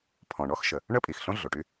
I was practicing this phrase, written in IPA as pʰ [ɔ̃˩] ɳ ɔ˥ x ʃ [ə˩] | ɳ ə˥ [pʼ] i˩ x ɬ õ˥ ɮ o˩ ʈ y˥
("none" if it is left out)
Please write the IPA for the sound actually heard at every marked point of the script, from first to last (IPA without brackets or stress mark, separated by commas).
ɔ̃˩, ə˩, pʼ